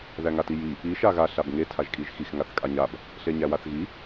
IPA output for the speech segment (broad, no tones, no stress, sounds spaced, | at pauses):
ð æ ŋ a t i j i | i ʃ a ɣ a ɬ a b ŋ e tʰ a ʒ kʼ i ʒ x i x ŋ a θ kʼ a ɲ a b | ɬ e ɲ æ w a θ ɣ i